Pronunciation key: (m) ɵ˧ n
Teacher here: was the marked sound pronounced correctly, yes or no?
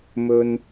yes